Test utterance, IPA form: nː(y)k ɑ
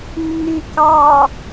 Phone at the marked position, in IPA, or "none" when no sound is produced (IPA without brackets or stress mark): y